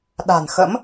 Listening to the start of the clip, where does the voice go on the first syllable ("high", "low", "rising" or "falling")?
low